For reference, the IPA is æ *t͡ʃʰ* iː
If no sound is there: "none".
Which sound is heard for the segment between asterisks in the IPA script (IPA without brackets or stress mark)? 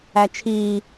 t͡ʃʰ